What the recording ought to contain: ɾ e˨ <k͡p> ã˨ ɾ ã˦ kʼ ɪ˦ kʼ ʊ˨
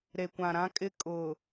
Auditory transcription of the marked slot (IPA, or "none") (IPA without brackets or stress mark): kʷ